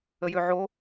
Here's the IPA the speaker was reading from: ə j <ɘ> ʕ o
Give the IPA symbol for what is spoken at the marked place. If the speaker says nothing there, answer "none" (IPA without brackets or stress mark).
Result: ø